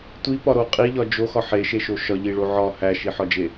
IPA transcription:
tʷ i p ɒ ɾ o qʼ i ʎ ɒ d͡ʒ o x ɒ ħ e ʃ e ʃ o ʃ ɒ ʎ i ɭ o ʕ ɒ h æ ʃ i ħ ɒ d͡ʒ e

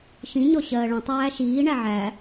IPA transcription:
ʃ ĩ ɲ ɔ ɕ ɜː ɭ ə̃ tˤ æː ʃ iː ɳ æ ʕ æ

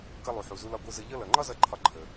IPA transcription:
k ʌ˧ lˠ u˩ ħ u˩ z u˧ l ɒ˧ ɡʷ ɯ˧ z ə˧ ʎ ʌ˥ l ʌ˩ ŋ͡ǃ ɒ˥ z ʌ˧ ǃʰ ɒ˧ ǃʰ ə˩

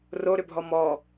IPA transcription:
r o ɾ ʏ bʱ ɔ m ɔ

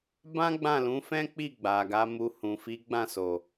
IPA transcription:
b ã˦ ɡ͡b ã˦˨ l ũ˨˦ f ɛ̃˦ k͡p i˦˨ ɡ͡b a˨ ɡ a˨˦ m u˧ h ũ˨ f i˨˦ ɡ͡b ã˦˨ s o˨

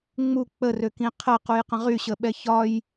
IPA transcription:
ŋ͡m u k͡p ə r ø k ĩ qʰ ə q u j q ə̃ ʁ y ɕ ə ɓ ɛ ç ɒ j

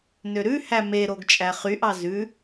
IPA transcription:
n ø ɾ ʉ h æ m e ɾ o ɡ t͡ʃʼ æ χ y ʔ ɑ z ʉ

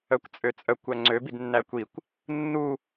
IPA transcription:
œ kʷ t͡sʼ ø t͡sʼ œ kʷ æ ŋ͡ǀ ø b i d nː æ kʷ i kʷ | nː u

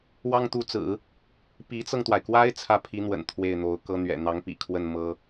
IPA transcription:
w ɑ˥ ŋ t̪ u˧˥ t͡s ɹ̩˨˩˦ | p i˧˥ t͡s ɤ˧ ŋ t̪ w a˩ ɪ̯ k w a˥ ɪ̯ t͡sʰ ä˥˩ pʰ i˧˥ n̪ w ə̰˨˩ n t̪ʰ w e˥˩ ɪ̯ n̪ o˧˥ ʊ̯ k ɤ˥ n̪ ɥ ɛ̰˨˩ n̪ ɑ˧˥ ŋ p ḭ˨˩ kʰ w ə˥˩ n m ɤ˥

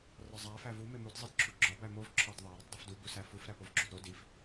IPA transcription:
r ɒ zˤ æ f æ v u m e m u d zˤ i d ǁʰ u ɡ͡ǁ ɒ b æ m o v ǁʰ ɒ d ðˤ æ ɾ o tˤ dˤ u f d u b u s æ f u f ɾ æ p o v ɡ͡ǁ o d ɾ o d i f

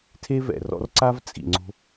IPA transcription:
tʰ e˥ v ɛ̰˩ r ɔ̰˧ r ǀ a˥ v t͡sʼ ḭ˩ ŋ͡ǀ o̤˧

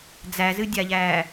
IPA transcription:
d͡z æ z ɨ dʲ a ʎ æː

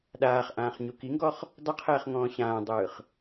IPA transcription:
ɗ aː χ ʔ ãː χ ɲ u k i ŋ ɡ ɔ χ | dˤ ə qʰ ɛː χ ŋ ɔ̃ː ɕ ãː dˤ ɯː χ

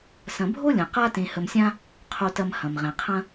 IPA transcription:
s ɐ̃˨ bʱ o˥ lʲ ɐ̃˩ q a˦ t ẽ˨ h ə˨ m sʲ ã˦ | qʰ o˨ t ɐ˨ m h ɐ̃˩ m ʁ ẽ˩ qʰ ɐ̃˥

